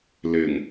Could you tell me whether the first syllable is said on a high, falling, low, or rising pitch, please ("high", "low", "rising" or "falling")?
low